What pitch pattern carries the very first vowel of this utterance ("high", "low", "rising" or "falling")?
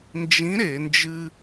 rising